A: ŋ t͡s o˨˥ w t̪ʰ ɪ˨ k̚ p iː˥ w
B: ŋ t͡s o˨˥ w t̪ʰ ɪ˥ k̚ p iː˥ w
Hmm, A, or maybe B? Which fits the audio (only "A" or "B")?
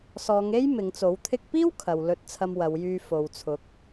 B